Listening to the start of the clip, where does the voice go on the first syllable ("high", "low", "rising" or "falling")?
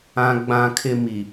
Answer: high